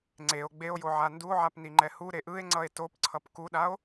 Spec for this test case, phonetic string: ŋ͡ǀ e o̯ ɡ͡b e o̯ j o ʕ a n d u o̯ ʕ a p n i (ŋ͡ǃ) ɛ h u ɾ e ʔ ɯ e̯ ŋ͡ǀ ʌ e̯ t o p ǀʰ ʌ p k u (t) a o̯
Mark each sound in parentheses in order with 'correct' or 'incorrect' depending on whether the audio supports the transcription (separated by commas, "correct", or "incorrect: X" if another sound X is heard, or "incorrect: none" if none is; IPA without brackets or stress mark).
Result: correct, incorrect: ɗ